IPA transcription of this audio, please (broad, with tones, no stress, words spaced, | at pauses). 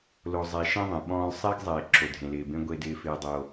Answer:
lo˨zˤɛ˨ ʃẽ˦ðˤẽ˨ɓɔ̃ː˦l sˤɪː˦ɡzˤɪː˨ ǁʰo˨dʱẽ˨lɪː˨bẽ˦ ɡʷe˦dɪː˦fɪː˦ dˤo˦